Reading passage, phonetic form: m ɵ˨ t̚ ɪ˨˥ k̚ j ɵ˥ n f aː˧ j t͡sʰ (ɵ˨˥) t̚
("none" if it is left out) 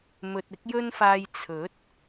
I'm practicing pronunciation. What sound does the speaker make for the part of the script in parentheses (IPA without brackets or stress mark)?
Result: ɵ˨˥